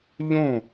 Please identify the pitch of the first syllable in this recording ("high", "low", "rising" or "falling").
falling